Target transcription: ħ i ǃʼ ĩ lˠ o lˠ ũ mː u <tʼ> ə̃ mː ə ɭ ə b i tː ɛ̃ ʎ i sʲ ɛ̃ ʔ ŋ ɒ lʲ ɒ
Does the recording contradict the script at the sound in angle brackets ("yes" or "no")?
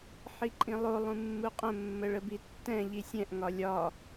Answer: yes